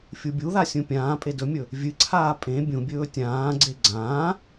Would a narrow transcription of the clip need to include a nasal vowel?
yes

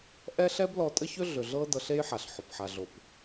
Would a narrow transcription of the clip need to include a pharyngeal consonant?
yes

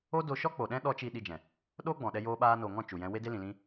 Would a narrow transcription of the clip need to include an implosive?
yes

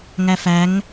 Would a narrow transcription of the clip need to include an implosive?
no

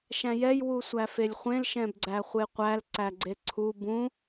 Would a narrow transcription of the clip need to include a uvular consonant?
yes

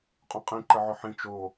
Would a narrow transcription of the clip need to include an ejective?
yes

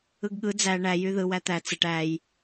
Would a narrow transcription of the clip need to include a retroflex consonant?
yes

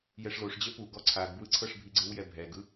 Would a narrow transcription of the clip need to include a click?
yes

